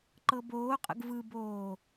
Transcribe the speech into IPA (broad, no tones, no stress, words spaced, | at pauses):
ǃɤboːqʼə̰ɡ vɯboː